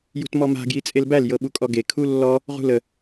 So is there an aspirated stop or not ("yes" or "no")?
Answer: yes